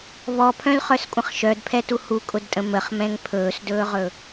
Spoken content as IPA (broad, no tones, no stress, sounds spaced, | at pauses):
β ɔ pʰ œ̃ l χ œ s kʷʼ ə̃ χ ʃ œ d pʰ ɛ t u h u kʼ ʊ d tʼ ə̃ m ə χ m ɛ̃ ŋ pʰ ɵː s d ɵː ʁ ɵ